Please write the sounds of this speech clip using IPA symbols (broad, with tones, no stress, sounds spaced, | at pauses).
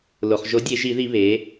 l o˩ χ ʒ o˩˥ dʲ e˧˩˧ ʒ i˧˩˧ ð i˧˩˧ β e˩˥